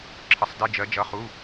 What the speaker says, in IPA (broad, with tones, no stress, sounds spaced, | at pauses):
ǁʰ ə˧ sˤ d ɪ˧˥˧ d͡ʒ ɜ˧˥ d͡ʒ ʌ˧˥˧ χ u˧˥˧